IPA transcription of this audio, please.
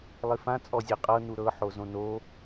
lˠifã t͡sʼɔzʲeqʼɤ nuɾɤ ħozõno

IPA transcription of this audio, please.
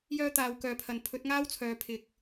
jœː˥t̪aː˨˧wkœː˨˧pʰɐ˨n pʰɵ˨˥t̚ŋaː˥wt͡sʰœː˨ pʰɪ˨k̚

